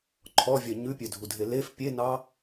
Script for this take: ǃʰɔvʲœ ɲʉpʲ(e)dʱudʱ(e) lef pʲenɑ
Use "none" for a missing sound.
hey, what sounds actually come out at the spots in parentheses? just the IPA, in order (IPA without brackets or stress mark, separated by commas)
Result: ø, e